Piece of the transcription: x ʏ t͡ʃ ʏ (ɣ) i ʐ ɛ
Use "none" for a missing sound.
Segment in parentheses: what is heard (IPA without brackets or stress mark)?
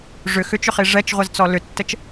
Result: χ